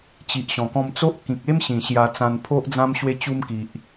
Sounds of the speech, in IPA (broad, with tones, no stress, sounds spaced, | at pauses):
t͡ɕ i˨ ʔ ɕ ɔ̃˨˩ k ɔ̃˧ m t͡s o˦ ʔ k ĩ˨ k̚ e˦ m ɕ ĩ˨˩ ɕ j a˧ t͡s ã˧ n pʰ o˦ ʔ d͡z ã˦ m ɕ w e˧ t͡ɕ u˧ m k i˨ ʔ